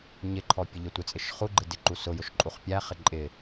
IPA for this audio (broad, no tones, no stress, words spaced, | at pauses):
ɲɪǃʰɔ pʲəʎətʷɪt͡sʼɪʃ χuɡ͡ǃɪ dɪǃu sʊjʊʃ ǃʼuχpʲæχɪ ǃʼɪ